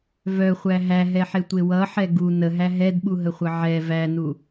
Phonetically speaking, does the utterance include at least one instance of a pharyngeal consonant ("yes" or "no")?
yes